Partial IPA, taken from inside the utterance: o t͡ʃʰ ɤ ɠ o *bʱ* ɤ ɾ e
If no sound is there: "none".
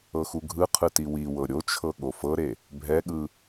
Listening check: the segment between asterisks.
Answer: f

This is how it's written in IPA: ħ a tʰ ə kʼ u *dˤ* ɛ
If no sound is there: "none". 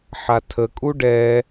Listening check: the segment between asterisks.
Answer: ɖ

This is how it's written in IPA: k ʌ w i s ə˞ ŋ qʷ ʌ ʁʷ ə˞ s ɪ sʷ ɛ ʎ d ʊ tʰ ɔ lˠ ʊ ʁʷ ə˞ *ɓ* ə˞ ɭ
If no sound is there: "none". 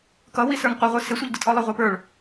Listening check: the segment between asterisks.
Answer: p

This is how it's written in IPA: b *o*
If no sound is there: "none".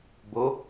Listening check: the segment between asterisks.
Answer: o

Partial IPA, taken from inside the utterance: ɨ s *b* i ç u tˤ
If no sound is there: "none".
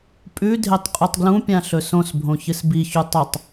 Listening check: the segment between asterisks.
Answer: b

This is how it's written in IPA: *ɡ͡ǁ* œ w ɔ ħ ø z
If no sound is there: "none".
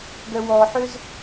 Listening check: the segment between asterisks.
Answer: ɡ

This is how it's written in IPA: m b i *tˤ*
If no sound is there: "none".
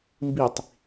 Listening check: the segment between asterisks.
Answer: tˤ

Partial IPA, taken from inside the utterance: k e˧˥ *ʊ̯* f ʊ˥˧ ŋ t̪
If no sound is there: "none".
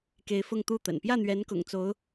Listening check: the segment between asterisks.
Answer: ɪ̯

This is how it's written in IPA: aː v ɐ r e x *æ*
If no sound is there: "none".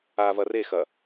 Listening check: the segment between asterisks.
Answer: ɐ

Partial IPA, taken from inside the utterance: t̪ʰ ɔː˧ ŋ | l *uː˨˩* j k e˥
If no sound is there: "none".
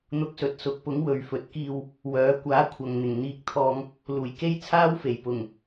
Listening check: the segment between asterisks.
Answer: uː˨˩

